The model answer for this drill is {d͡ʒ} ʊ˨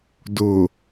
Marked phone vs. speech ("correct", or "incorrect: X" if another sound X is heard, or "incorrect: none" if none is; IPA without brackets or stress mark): incorrect: d